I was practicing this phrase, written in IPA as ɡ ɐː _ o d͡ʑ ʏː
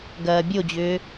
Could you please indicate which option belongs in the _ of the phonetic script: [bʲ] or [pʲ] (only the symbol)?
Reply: bʲ